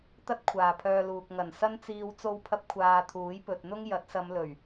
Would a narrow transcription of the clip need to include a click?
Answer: no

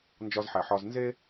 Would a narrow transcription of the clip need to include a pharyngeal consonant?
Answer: yes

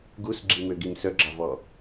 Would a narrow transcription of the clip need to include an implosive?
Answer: no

